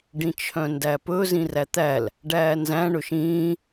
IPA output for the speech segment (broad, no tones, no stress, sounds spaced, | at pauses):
ɖ ĩ t͡ʃʰ œ̃ n d æ p ɵ z ĩ r æ t̪ æ l | ɖ æː n z æ̃ ɳ ɵ ʃ ĩː